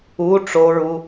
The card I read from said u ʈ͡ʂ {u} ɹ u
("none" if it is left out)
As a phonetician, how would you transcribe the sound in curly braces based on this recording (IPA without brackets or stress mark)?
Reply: o